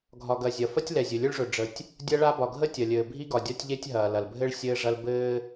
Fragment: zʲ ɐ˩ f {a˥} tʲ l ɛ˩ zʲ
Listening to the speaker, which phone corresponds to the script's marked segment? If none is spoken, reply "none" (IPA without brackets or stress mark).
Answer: ɐ˥